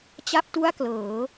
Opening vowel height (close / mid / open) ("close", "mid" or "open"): open